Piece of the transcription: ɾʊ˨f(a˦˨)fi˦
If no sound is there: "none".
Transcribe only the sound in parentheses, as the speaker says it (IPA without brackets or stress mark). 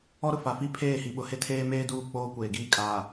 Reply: a˨